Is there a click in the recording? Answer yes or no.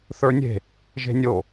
no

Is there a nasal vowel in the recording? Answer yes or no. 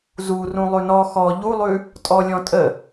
yes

